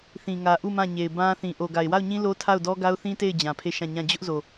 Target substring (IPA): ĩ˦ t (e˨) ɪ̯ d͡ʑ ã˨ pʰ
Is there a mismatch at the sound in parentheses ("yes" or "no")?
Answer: yes